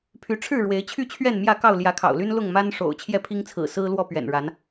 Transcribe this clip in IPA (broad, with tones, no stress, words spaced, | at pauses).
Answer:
pʰy˨˦ʈ͡ʂʰɻ̩˥˨ɻwe˨˦ɪ̯ t͡ɕʰy˥˨t͡ɕʰɥɛ˥˨nmjä˥˨kɑ˥˨ʊ̯ ljä˨˦kʰɑ̰˨˩ʊ̯ly˦n lʊ˥˨ŋma˦n ʂo̰˨˩ʊ̯ t͡ɕʰjɛ˥˨pʰi˦ŋt͡sʰɹ̩˨˩ sɹ̩˦ lwɔ˥˨pɥɛ̰˨˩nɻa˨˦n